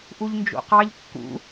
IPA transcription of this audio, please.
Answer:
ʔ u ʎ n d͡ʒ o̰ q ɑ ʎ kː ṵ

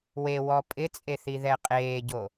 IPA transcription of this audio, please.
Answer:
w e w ɔ pʼ ɪ t͡sʼ e θ i ð ɛ qʼ eː ɟ o

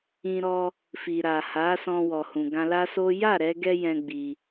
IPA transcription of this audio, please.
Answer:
ĩ˧ ɾ ɔ˧ | f i˨ ɾ a˨ h a˨˦ s ɔ̃˧ w ɔ˨ h ũ˨ ɡ ã˧ l a˦ s o˦ j a˦˨ ɾ ɛ˧ ɡ ɛ˧ j ɛ̃˦ ɡ͡b i˧

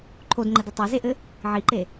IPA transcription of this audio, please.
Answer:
ǃʰ o d ŋ͡ǃ ɘ d ɐ tˤ a z e ʔ ɘ | ʕ i ǃ e

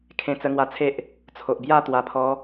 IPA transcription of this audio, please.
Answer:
kʰ ẽ˧ t͡s ə˧ ŋ w a˧ t͡sʰ e˦ ʔ | t͡sʰ o˨ ʔ b j a˥˧ t̪ w a˨˩ pʰ ɔ˨˦

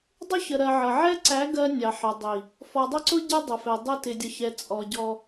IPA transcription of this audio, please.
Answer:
dˤ ʊ˦ ç ə˨ ɾ ɜ˨ ʕ ʌ˨ ʕ ɛ˦ ǀ æ˨˦ ɡ ɜ˦ nʲ ɑ˨ ħ ə˨ dˤ i˨ | f ɔ˨ dˤ ʊ˦ ǀ ʊ˦ ɟ ɛ˦ dˤ ʊ˨ f ɛ˨ dˤ ʊ˦ t ɪ˨ dʲ ʌ˨ ç ɛ˨ t͡sʼ ɔ˨ ɟ ɔ˦

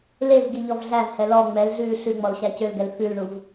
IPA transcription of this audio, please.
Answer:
l e v ɡ i ʎ ɔ v ɮ æ v h ɛ l ɔ ŋ͡m ɛ l ɮ ʉː ɬ ʉ ŋ͡m ɔ l ɕ æ c ø l ɡ ɛ l f ʉ l ɳ u v

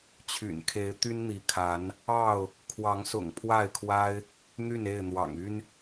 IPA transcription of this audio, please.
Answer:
t͡ɕʰ y̰˨˩ n kʰ e˨˦ ɪ̯ t̪ y˦ n n̪ i˨˦ kʰ a˨˦ n | ɑ˥˨ ʊ̯ | kʰ w ɑ˨˦ ŋ s ʊ̰˨˩ ŋ pʰ w a˥˨ ɪ̯ kʰ w a˦ ɪ̯ | n̪ y˥˨ n e˥˨ ɪ̯ n̪ w ɑ̰˨˩ ŋ y˦ n

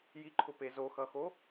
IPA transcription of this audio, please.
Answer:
j i ǃʰ ʊ p e z o x ʌ x o

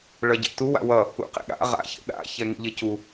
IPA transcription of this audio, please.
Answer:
ɭ ʌ ɟ ḛ t u w a̰ w ʌ | ṵ q ḛ ɠ a̰ ʁ a̰ ç ḛ ɗ a̰ ç ɛ ŋ ḭ ʎ e c u

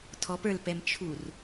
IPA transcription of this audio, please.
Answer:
tʰ ɔ p ə˞ l p ɛ m t͡ʃʰ u r

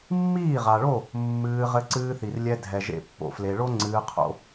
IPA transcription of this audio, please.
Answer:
mː iː˦˨ ʁ a˨ ɭ o˦˨ | mː ɨː˧ ʁ ɘ˧ ǀ ɨː˧ θ i˨ r lʲ ɛ˧ dʱ ɛ˨ ʒ ḛ˧ pː o̰˧ f l e˧ ɭ o˦ ŋ͡ǀ ɨː˧ qʰ o̰˧

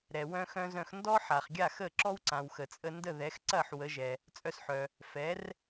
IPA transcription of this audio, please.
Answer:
ɾ ɛ˩ w œ̃˧ x œ̃˧ z œ̃˧ x n d ɔ˥ ħ a˩ χ ɡʲ a˥˩ x ə˥˩ ǁ ɔ˥ w ǀ ã˩ w x ə˩ t͡sʼ ə˧ n d ə˥˩ ð ɛ˩˥ x ǀ ɐ˥˩ ħ w ə˩˥ ʒ ɛ˩ | t͡sʼ œ˧ s ħ œ˩ | f ɛ˩˥ r

